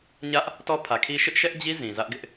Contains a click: no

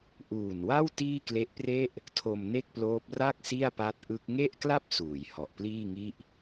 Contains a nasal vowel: no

